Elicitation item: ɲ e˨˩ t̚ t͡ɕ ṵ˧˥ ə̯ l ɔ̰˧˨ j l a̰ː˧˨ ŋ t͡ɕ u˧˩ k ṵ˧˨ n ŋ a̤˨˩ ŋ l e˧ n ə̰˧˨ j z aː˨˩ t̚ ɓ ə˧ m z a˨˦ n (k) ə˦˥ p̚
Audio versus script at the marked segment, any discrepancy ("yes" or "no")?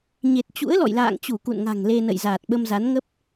yes